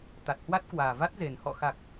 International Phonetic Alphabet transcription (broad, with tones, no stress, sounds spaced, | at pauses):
t̪ a˨˩ t̚ h w a˦˥ t̚ k w aː˨˩ v a˦˥ t̚ z e˨˩ n h ɔ̰˧˨ x a˨˩ k̚